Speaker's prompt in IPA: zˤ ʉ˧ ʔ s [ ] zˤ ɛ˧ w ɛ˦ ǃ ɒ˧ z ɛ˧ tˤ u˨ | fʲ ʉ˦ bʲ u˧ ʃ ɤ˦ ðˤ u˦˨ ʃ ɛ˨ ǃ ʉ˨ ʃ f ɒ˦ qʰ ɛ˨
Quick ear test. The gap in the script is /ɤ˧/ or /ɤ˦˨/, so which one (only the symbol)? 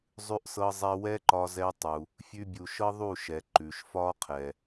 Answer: ɤ˧